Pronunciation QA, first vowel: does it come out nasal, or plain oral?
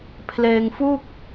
oral